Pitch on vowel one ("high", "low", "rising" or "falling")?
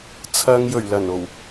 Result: low